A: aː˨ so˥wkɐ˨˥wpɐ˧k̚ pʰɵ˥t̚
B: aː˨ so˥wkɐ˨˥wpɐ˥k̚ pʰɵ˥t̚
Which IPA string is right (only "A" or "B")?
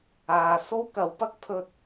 B